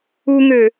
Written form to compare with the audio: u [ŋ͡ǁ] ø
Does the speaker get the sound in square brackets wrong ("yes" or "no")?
yes